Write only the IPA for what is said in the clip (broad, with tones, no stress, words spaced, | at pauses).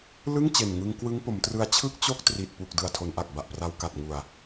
lɯ˥˩ŋ t͡ɕe˨˩nŋɯ˧ŋ kwɯ˦˥ŋpo˩˦mtrɯ˧a̯ t͡ɕʰɯ˥˩k̚t͡ɕo˥˩k̚tri˨˩t̚ pu˨˩k̚ dɯ˨˩a̯tʰo˩˦nʔa˨˩k̚ ba˨˩ʔpra˧wka˨˩t̚ ŋu˨˩a̯